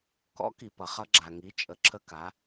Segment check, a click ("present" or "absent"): present